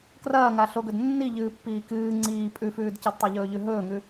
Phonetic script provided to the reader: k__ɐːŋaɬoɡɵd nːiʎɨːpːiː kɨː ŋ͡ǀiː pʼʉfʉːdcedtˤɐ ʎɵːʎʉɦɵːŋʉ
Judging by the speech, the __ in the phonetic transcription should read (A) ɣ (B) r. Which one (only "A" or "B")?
B